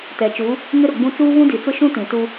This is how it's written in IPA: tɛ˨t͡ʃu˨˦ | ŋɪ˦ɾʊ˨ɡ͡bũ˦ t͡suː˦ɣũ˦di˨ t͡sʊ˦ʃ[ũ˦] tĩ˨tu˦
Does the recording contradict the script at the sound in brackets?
no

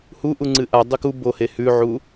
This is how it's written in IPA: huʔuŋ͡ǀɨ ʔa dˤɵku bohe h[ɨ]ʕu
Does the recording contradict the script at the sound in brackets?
yes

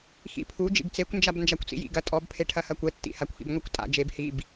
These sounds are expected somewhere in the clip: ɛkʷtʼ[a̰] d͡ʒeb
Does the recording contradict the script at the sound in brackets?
no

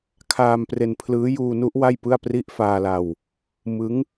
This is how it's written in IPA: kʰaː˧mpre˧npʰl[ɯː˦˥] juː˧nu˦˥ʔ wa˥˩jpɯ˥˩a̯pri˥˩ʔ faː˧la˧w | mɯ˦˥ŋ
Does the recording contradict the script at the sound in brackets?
no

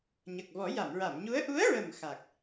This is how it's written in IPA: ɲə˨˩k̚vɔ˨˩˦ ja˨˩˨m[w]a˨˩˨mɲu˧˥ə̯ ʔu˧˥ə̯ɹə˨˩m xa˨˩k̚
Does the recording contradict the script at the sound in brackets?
yes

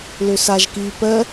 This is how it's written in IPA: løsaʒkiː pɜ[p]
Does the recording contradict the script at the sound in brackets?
yes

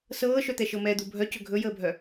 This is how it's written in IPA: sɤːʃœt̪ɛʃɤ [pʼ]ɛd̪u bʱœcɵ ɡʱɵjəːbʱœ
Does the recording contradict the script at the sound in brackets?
yes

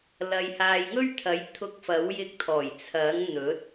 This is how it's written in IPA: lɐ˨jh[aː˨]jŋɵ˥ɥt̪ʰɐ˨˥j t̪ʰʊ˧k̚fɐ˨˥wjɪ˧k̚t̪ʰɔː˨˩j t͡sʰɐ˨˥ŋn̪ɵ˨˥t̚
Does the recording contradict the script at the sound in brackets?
no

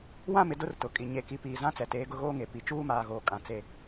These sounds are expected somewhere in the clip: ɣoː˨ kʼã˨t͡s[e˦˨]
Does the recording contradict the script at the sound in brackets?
no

